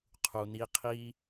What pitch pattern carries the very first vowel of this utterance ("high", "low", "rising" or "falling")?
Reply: low